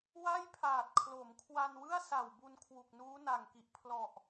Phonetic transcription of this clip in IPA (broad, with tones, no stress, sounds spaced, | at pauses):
w a˥˩ j pʰ aː˨˩ t̚ kʰ l o˩˦ m kʰ w a˧ n w ɯ˥˩ a̯ s a˨˩ w b u˧ n kʰ w u˨˩ k̚ n uː˦˥ n a˨˩ ŋ k i˨˩ ʔ pʰ l ɔ˨˩ ʔ